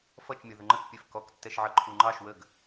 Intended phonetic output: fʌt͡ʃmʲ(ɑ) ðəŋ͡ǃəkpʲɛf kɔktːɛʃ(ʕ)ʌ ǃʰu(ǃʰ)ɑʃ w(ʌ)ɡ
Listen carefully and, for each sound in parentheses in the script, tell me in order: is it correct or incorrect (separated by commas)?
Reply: incorrect, correct, incorrect, incorrect